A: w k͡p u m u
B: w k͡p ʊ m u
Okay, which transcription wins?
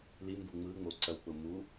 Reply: B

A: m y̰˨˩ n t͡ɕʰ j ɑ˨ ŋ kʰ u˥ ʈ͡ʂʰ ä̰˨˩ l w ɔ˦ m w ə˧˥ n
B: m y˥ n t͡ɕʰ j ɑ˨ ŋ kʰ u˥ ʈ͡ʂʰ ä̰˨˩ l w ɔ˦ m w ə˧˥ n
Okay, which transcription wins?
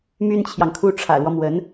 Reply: B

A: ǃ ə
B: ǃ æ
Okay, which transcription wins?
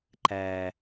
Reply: B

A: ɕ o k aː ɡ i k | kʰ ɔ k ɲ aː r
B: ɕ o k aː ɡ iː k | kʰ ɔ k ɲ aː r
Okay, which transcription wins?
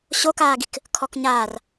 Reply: A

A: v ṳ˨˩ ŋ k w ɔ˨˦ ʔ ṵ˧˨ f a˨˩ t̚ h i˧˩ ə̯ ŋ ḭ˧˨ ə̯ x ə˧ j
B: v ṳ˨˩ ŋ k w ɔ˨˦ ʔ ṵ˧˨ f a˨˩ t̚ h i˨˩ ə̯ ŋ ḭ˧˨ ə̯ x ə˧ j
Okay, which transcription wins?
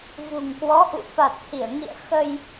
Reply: A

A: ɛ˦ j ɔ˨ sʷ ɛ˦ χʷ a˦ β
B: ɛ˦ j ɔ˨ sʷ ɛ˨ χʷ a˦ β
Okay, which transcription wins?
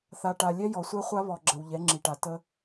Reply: A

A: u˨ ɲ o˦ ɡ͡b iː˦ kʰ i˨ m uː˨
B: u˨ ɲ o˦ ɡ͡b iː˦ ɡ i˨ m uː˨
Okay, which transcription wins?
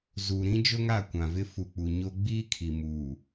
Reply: A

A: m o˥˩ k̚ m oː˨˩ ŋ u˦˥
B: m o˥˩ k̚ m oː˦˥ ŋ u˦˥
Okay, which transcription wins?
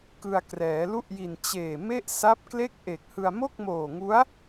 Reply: A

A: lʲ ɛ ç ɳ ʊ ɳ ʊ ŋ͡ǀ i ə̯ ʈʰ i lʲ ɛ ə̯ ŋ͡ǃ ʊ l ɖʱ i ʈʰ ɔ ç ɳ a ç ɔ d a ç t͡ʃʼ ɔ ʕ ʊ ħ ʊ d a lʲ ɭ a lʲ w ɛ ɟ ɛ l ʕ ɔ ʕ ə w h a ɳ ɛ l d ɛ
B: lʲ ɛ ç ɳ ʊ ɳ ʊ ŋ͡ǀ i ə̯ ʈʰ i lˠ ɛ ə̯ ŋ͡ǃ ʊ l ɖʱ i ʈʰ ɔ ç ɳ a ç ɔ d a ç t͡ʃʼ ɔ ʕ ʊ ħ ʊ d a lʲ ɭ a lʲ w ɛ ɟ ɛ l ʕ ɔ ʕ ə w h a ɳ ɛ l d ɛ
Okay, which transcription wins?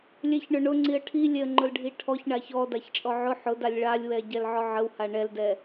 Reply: A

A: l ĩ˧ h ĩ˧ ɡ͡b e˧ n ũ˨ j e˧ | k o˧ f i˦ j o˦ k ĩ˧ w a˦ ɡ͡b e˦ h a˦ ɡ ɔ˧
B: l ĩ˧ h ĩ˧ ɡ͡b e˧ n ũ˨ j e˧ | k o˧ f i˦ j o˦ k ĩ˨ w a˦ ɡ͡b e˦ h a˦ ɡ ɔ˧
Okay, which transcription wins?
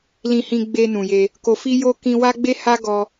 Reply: A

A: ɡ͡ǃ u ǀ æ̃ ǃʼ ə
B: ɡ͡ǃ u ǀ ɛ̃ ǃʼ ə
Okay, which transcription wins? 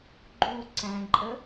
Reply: A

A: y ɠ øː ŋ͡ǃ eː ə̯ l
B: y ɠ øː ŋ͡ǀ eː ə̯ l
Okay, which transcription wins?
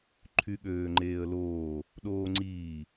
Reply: A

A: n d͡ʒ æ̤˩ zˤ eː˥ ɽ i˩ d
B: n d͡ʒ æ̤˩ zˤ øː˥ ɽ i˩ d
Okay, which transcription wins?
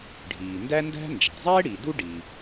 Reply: A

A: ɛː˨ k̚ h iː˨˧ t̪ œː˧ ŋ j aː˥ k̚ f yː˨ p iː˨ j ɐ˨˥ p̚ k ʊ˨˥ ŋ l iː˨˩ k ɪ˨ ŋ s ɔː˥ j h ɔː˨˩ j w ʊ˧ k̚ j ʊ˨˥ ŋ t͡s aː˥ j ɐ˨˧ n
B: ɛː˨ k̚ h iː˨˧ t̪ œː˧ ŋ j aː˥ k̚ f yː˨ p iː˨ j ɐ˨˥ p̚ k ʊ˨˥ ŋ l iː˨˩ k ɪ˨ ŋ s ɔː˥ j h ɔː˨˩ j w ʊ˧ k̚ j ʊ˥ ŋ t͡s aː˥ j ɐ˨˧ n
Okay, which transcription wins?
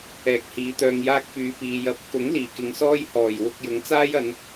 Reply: A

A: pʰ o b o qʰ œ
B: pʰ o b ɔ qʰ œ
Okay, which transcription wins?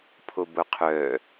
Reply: A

